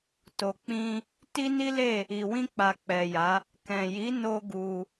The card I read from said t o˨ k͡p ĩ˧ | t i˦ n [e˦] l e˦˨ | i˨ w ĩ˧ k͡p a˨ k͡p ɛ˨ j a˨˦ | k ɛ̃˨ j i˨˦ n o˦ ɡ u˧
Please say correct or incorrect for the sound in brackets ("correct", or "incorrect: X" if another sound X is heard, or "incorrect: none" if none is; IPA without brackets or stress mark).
incorrect: i˦